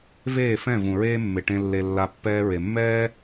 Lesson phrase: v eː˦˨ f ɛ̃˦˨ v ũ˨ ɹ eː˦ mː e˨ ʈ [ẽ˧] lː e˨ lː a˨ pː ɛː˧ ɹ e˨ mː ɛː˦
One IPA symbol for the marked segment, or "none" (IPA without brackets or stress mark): ẽ˧